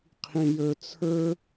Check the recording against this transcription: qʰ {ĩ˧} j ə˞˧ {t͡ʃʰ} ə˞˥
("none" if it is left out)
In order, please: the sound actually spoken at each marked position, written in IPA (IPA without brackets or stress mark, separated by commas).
ĩ˧, t͡sʰ